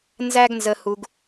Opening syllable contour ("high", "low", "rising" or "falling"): high